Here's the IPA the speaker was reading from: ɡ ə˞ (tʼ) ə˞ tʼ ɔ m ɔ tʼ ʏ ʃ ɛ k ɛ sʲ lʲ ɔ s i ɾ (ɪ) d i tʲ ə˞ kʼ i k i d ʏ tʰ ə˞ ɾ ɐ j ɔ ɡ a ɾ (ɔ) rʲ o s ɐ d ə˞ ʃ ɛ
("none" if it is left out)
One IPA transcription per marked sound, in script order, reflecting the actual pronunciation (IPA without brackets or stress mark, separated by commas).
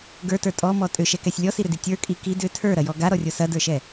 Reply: t, ʏ, ɔ